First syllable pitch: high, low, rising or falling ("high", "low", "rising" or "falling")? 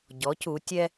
rising